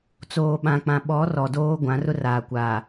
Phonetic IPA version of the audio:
t͡s oː˨ ɓ ã˨ k͡p ã˨ ɓ ɔ˨˦ r ɔ˨ d oː˦ ɡʷ ã˨˦ r ʊ˦ r aː˨ kʷ aː˨

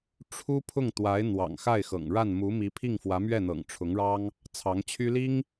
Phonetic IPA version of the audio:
ʈ͡ʂʰ u˥ pʰ ʊ˥˩ ŋ t̪ w a˧˥ ɪ̯ n̪ w ɑ̰˨˩ ŋ x a˥˩ ɪ̯ x ɤ̰˨˩ ŋ ɻ a˥˩ n m u˧˥ m i˧˥ pʰ i˥˩ ŋ f w ä˧˥ m ɥ ɛ˥˩ n̪ ɤ̰˨˩ ŋ ʈ͡ʂʰ ʊ˧˥ ŋ ɻ ɑ˥ ŋ | t͡sʰ ɑ˧˥ ŋ t͡ɕʰ y˥ l i˥ ŋ

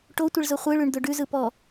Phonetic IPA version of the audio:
ʈ o tʷ ɪ ɭ z ʊ χʷ ɯ ɭ ʉ ɳ d̪ ʊ ɖ ʉ z ɯ p ɔ

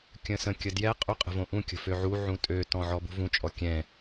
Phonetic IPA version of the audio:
kʲ ə̃ s ə̃ kʲ ə d j ɛ qʼ u qʼ ə̤ v õ ʔ ũ kʲ ə̤ f ø ʕ u ʕ ũ tʼ ø t ɔ̃ ʕ ɔ b ṳ v ũ t͡ʃʼ ɔ kʲ ɛ̃

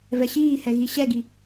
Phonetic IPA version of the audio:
v ɛ ɕ iː h ɛ ɣ i ɕ ɛ ɡ i

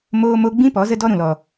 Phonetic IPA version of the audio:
m oː˦ m o˦ ɡ͡b ĩ˦ p ɔ˨˦ z ə˦ d ɔ˦ ɾ ũ˨ l ɔ˨

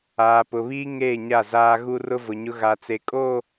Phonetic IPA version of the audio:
aː˨ p ʊ˨ β iː˦ ŋ eː˦˨ ɲ a˦˨ z aː˦ ɣ u˦ r ʊ˦ v ʊ˨ ɲ ʊ˦ ɣ a˨ t͡s e˨ kʼ o˦˨

